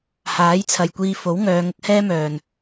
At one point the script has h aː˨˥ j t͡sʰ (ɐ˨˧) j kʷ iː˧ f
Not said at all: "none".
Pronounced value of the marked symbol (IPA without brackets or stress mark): ɐ˨